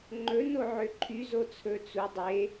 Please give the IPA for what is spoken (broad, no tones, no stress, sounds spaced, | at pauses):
ŋ͡ǃ ɵ n o ʕ ø ǃʰ y z o t͡sʰ ɵ t͡s u dˤ e